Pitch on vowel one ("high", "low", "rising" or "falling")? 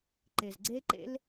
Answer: low